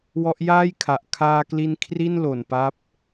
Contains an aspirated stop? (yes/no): yes